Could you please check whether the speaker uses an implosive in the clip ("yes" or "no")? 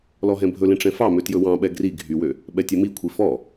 yes